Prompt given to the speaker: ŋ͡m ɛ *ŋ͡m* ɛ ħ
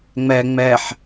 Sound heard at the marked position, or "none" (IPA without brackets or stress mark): ŋ͡m